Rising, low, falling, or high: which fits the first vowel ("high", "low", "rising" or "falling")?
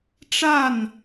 falling